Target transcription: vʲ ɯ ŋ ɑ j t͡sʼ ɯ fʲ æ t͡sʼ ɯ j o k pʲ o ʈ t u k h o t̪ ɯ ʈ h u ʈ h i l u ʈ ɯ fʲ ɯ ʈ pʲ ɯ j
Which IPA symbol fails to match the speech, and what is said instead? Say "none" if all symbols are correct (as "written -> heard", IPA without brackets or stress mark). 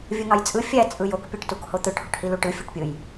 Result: none